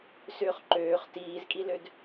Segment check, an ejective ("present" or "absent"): present